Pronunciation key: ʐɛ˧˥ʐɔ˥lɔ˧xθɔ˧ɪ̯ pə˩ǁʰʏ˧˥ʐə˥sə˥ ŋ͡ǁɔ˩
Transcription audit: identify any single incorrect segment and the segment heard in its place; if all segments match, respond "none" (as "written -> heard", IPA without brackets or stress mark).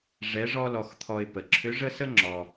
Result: θ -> t̪ʰ